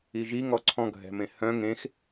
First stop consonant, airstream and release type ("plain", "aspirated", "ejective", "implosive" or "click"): click